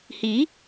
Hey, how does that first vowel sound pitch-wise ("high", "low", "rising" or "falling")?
rising